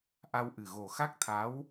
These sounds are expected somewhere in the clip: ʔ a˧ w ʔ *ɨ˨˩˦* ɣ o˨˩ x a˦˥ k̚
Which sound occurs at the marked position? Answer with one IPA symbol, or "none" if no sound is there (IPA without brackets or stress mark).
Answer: ɨ˨˩